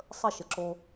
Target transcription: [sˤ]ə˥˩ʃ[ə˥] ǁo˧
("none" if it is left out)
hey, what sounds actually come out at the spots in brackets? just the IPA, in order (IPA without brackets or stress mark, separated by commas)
sˤ, ə˩